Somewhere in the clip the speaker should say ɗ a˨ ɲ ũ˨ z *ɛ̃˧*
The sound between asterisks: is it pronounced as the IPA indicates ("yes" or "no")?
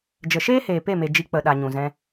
yes